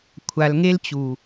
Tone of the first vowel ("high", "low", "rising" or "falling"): low